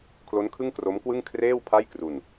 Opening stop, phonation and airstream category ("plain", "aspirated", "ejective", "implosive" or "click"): aspirated